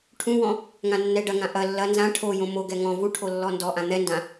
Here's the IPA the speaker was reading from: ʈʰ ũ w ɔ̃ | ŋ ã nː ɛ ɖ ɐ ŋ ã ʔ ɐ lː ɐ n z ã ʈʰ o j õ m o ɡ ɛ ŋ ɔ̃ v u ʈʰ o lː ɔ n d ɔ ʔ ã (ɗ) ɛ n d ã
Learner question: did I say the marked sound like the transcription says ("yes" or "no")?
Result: no